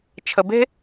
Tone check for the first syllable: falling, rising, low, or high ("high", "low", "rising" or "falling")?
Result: low